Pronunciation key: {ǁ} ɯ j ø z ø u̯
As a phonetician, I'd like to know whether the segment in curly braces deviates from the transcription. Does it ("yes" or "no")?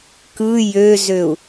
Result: yes